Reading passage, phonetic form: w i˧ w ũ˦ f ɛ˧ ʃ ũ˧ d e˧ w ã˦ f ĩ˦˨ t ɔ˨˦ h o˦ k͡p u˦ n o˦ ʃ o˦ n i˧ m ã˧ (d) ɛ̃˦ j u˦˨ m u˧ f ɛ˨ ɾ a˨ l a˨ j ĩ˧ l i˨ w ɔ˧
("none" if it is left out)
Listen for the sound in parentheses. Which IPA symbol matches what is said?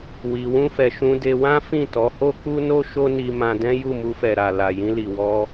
d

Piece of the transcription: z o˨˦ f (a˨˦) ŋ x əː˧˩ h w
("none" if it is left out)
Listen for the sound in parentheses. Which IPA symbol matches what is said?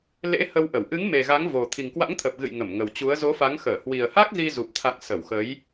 a˨˦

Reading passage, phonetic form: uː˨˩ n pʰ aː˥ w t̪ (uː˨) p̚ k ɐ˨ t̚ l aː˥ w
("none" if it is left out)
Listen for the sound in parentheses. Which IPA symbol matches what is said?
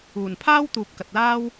uː˨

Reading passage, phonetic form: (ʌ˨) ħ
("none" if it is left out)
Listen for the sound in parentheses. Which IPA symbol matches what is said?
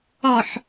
ɒ˨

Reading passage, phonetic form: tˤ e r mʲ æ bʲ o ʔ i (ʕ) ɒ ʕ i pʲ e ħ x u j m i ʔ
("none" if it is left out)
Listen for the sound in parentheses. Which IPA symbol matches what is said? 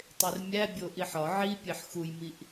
ħ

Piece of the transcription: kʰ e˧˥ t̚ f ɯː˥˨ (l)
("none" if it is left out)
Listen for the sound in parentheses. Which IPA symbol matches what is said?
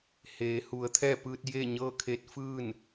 n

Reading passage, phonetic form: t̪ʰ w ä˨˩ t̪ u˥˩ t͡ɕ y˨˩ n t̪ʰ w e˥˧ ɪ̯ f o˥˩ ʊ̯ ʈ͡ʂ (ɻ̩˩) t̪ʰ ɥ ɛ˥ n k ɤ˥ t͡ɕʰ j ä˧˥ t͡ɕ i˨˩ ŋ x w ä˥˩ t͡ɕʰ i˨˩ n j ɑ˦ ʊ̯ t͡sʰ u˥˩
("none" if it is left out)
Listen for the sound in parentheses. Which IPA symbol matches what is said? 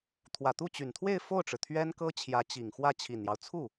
ɻ̩˩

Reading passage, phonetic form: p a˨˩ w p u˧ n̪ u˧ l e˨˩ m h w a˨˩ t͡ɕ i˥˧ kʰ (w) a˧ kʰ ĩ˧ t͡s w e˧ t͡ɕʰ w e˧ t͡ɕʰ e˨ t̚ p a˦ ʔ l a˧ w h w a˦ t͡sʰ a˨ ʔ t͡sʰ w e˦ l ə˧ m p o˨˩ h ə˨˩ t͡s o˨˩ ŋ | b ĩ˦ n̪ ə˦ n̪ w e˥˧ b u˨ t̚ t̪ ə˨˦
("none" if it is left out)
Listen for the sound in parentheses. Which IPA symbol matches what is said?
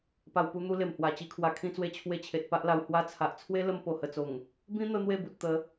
w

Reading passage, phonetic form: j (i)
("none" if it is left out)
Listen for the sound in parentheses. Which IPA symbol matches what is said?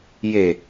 e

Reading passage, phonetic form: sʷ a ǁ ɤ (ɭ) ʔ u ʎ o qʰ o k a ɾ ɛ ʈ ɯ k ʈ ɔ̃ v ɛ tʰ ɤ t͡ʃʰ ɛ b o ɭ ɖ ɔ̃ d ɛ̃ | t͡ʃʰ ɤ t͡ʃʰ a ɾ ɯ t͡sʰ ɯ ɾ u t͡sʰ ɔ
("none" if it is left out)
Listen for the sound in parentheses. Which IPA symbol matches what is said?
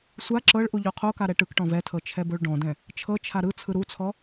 ɭ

